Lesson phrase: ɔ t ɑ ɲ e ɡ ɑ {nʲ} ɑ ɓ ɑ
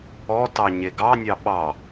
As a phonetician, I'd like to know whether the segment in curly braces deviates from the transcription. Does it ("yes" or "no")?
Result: no